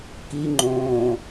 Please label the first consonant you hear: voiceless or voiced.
voiceless